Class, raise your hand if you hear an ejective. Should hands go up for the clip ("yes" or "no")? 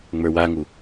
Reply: no